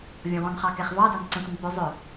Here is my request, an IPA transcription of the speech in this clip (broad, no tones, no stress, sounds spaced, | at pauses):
vʲ ɔ̃ w ɔ̃ n χ ɑ k ɛ χ v ɑ d ɑ n ǀ ə̃ tʷ ə̃ n p ʏ zˤ ʏ